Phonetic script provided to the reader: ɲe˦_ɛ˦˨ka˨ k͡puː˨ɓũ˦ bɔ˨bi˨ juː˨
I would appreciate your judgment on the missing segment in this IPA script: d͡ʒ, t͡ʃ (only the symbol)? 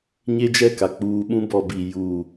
d͡ʒ